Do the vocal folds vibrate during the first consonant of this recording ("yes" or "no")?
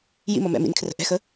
yes